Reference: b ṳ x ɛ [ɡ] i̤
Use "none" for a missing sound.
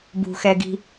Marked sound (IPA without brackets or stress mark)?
ɡ